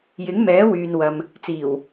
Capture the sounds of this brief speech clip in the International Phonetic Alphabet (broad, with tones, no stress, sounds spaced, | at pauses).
j ɪ˨˥ ŋ m ɛː˨˥ w yː˨ n w ɐ˨ m | t͡s iː˨˩ w